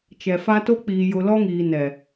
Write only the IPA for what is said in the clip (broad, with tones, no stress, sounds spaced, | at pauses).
t͡ʃ ɛ˨ f a˦ t o˦ k͡p iː˨ j ʊ˨ l ɔ˦ ŋ iː˨ n ɛ˨